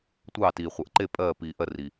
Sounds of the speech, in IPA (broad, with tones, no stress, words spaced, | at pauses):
tʷɑː˧˩tiː˩χʷɜ˩ʔǃe˧˩ pʼɜː˧˩piː˩ʔɜ˧˩r i˩